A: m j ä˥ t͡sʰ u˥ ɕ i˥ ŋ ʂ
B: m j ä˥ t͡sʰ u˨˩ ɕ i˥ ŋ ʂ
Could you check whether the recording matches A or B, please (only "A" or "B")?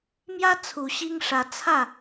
B